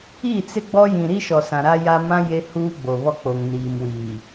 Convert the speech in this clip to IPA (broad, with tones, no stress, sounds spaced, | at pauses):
i˦˨ t͡s ɪ˦ ɡ͡b ɔ˦ j ĩ˨ ɾ i˦ ʃ ɔ˨ s ã˨ ɾ a˦ j a˦ m ã˦ j e˦ h uː˦ ɡ͡b o˨ β ɔ˦ k͡p o˨ ŋ n iː˨ m w iː˨